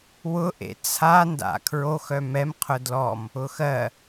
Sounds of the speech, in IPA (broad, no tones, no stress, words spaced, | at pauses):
wʊʔḛ t͡sʰanda̰ kʰɹoxœ mɛmqʰʊ dlɔm | ʊxɜ